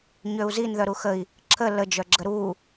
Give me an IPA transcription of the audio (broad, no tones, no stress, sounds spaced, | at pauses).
ɲ ø u̯ z i n ð œ ɾ u x ə i̯ | ǁʰ ə l ə d͡ʒ œ ɡ͡ǁ ə ɾ u